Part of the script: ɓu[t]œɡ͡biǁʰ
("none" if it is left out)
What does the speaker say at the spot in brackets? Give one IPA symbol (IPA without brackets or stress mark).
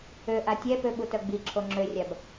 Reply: t